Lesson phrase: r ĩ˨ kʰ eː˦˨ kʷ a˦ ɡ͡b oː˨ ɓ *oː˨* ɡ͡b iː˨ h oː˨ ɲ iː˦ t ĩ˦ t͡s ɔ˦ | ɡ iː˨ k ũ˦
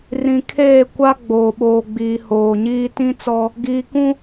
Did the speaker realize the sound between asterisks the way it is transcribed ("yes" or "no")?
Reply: yes